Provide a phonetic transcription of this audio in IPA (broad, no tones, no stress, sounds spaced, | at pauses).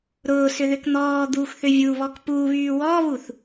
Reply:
ɾ ʊː s ʏ ð ʏ k n̪ ɔː d̪ uː x θ ʏ vʲ u β ɔ k p uː β yː w ɔː β u θ